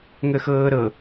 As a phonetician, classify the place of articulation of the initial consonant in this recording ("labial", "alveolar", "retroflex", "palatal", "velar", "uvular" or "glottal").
velar